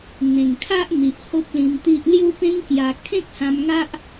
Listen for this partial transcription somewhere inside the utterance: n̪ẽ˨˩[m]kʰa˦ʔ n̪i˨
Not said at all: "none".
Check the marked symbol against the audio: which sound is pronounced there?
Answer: ŋ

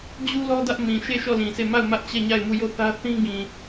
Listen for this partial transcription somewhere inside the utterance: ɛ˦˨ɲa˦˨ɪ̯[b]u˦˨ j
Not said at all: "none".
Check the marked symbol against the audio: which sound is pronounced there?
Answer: m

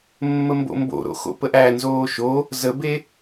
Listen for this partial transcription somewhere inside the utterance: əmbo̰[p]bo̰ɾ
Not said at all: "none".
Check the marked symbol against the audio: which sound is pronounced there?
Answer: m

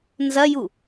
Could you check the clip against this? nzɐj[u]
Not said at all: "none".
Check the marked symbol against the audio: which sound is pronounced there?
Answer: u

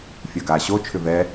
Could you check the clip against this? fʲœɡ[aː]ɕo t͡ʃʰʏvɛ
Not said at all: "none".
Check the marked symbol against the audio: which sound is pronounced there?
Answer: aː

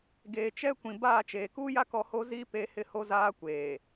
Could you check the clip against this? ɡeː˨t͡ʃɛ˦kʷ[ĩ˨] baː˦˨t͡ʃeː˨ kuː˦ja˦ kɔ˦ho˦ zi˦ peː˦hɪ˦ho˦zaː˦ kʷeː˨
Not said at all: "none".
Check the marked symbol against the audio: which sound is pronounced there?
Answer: ĩ˨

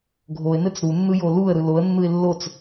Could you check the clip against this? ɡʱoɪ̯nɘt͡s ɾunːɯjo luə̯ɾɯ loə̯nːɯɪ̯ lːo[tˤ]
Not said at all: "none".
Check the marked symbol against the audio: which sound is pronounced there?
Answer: t͡s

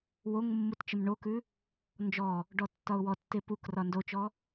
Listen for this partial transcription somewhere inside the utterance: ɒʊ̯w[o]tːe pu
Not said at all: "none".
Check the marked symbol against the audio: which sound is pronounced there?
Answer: ɔ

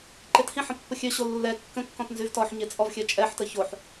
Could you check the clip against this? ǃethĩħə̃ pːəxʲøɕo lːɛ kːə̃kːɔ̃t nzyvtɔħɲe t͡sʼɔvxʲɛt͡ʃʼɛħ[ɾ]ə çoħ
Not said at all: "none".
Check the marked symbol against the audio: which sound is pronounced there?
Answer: t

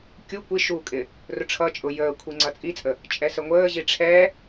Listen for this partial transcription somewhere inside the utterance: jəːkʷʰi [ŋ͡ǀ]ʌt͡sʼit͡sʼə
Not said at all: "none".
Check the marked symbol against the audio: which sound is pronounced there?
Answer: ŋ͡ǀ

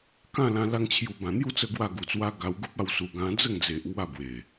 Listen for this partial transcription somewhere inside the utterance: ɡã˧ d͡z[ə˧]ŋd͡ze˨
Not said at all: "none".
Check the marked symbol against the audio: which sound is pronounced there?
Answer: ə˥˧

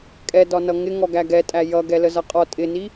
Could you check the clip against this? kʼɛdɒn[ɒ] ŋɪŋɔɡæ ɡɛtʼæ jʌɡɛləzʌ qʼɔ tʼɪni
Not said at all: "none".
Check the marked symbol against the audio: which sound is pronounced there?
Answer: ʌ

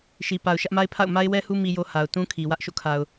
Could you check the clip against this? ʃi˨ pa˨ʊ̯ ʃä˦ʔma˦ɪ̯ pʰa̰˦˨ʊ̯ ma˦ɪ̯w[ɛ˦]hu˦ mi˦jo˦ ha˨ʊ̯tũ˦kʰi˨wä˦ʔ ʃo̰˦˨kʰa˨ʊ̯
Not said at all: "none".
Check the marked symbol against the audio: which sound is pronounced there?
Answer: ɛ˦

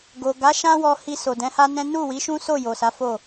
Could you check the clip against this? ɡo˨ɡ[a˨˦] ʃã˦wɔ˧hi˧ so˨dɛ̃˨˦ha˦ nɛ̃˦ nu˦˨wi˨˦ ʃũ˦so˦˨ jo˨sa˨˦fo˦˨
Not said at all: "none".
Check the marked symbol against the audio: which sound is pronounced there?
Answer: a˨˦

